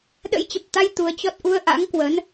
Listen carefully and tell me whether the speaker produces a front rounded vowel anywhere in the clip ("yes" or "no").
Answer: no